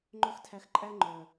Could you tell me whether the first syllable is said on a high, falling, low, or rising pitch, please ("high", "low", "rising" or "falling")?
high